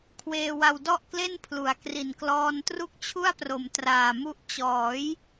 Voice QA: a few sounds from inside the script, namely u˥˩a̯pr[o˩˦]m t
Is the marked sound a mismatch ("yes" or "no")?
no